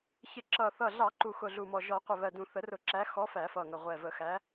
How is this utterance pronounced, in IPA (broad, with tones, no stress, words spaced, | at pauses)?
çɪ˨˩˦ǁʌ˨˩ θʌ˨˩ɮɑ˨˩˦ ǃu˨˩xʊ˨˩ɮu˨˩mɔ˨˩ ʒɔ˨˩˦ qʷɪ˨˩βɜ˨˩ dũ˨˩˦θə˨˩˦rʊ˨˩˦ǁæ˨˦ xɔ˨˦ fæ˨˩˦fʌ˨˩ŋə˨˩ʁʷɛ˨˩ və˨˩˦xæ˨˦